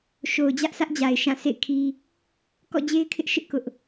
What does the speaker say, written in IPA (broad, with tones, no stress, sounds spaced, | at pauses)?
ʃ o˨ ʊ̯ d͡ʑ ä˦ ʔ s ä˦ ʔ d͡ʑ a˨ ɪ̯ ʃ ã˦˨ sʰ ḛ˦˨ ɪ̯ kʰ i˦ | k ɔ̰˦˨ d͡ʑ e˦ ɪ̯ kʰ ɪ˦ ʔ ʃ ɪ˦ ʔ k ʊ˦ ʔ